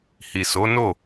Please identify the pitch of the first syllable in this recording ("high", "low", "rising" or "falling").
low